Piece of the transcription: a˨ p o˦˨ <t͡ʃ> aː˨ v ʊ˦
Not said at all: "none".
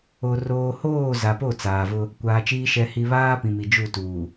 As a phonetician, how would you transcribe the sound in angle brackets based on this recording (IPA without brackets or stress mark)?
t͡s